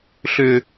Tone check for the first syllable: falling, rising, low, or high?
high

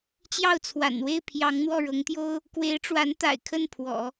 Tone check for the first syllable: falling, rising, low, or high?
falling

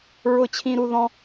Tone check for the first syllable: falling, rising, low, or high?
high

